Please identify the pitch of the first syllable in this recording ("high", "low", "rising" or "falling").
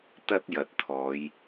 high